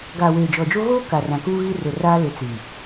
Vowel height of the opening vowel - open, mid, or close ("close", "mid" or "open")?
open